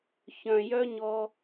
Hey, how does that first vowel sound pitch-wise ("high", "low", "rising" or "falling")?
low